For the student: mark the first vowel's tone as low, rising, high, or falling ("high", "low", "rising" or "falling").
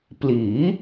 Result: rising